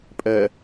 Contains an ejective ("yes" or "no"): yes